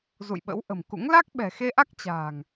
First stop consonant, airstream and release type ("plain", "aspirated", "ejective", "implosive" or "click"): implosive